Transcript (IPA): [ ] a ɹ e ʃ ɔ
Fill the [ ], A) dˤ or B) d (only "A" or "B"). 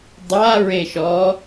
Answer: A